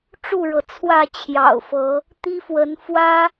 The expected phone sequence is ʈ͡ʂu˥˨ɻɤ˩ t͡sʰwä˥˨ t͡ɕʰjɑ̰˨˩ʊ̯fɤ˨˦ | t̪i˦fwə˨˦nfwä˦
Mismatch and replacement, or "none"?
none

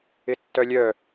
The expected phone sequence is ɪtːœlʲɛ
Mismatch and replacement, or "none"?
ɛ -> œ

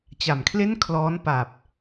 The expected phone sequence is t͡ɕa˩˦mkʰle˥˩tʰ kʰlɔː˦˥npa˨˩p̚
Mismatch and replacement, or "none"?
tʰ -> n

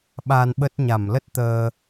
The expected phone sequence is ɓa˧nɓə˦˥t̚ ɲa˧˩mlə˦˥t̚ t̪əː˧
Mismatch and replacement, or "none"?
none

